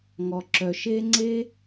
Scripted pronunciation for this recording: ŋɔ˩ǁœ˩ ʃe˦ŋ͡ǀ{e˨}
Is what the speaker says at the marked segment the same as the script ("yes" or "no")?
no